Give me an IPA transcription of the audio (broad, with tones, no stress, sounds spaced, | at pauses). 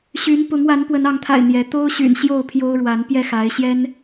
ɕ y˨˦ n p ʊ˨˦ ŋ w a˨˦ n p w ə˨˦ n ɑ˨˦ ŋ t̪ʰ a̰˨˩ ɪ̯ n̪ j ɛ˨˦ t̪ o˦ ʊ̯ ɕ y̰˨˩ n ɕ j o˥˨ ʊ̯ pʰ j o˦ ʊ̯ ɻ w a˨˦ n p j ɛ˥˨ x a˨˦ ɪ̯ ɕ j ɛ˦ n